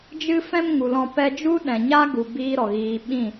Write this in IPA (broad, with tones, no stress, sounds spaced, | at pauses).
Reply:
d͡ʒ ɨ˦ f ɛ̃˦ m ŋ u˨ l ɔ̃˧ p ɛ˧ d͡ʒ u˦ ɗ ɛ̃˨ ɲ a˦ ɡ u˨ b iː˦ ɾ ɔ˨ ɣ iː˧ ɓ ĩ˦˨